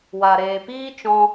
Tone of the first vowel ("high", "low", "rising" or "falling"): low